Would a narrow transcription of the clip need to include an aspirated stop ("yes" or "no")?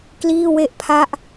yes